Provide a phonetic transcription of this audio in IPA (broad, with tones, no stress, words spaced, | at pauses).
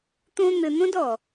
t̪õ˧n̪ɘ˨n̪õ˦d ɔ˨